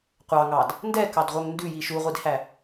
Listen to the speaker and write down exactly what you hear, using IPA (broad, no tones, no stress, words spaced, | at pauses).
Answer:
qʷɑŋɑd | ndɛkɑdʁʷœŋ ndʉji ʃuʁʷidhæ